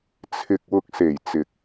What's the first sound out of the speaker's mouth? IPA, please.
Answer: t͡sʰ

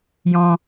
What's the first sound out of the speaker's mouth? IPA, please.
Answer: j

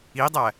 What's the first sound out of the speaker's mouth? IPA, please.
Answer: i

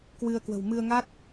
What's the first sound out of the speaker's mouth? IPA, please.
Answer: k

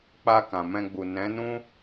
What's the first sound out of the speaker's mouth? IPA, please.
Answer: k͡p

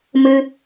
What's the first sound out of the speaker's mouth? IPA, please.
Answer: m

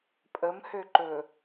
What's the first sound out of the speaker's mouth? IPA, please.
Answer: pʼ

